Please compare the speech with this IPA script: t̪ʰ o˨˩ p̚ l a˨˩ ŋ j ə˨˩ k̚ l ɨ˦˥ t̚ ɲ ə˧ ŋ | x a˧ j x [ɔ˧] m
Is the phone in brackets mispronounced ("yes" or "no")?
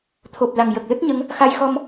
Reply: no